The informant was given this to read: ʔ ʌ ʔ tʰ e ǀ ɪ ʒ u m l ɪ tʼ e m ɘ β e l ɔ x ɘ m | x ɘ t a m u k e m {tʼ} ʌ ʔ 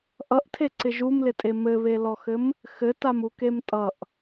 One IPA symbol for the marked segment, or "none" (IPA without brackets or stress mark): tʼ